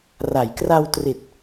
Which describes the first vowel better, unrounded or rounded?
unrounded